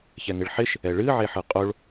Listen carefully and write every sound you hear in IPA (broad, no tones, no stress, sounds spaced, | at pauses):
ç ɛ ŋ ɪ ɭ ħ ɪ ʃ | ɛ ɭ ɨ ʕ e ħ ɯ qʼ o ɭ